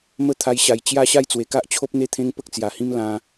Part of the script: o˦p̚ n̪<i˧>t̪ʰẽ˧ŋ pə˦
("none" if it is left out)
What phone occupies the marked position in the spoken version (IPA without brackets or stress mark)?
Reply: e˧